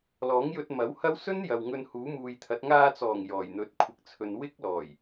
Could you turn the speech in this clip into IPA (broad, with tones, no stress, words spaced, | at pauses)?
lɔː˨˥ŋjɵ˧t̚mɐ˨˥whɐ˥w sɵ˥n jɐ˨w ŋɵ˧nhuː˨˥muː˨jt̪ʰɐ˨˥t̚ ŋaː˧t͡sɔː˨˩ŋ jɔː˨˩jn̪ɵ˨˥t̚kʷʰɪ˨k̚t͡sʰɵ˨n wɪ˥k̚lɔː˨˩j